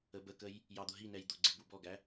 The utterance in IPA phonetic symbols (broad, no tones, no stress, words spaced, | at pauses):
əbəkəj | jɑd̪ʊɦinɛj d̪ʊɡ͡ǀɪ bubɔɡæ